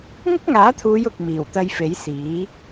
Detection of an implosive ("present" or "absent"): absent